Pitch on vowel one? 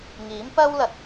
rising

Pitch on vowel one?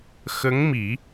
rising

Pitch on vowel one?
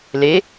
rising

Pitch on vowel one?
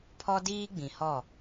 high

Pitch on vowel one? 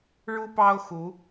high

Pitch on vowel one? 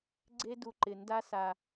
high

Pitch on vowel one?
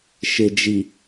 low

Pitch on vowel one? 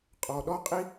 low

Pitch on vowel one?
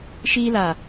high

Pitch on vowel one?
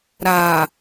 low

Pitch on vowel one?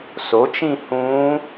rising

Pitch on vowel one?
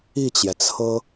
falling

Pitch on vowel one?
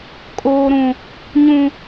high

